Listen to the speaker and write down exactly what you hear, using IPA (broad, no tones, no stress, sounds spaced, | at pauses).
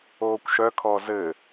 oː kʷ ʃ œ kʰ ɔ z ɘ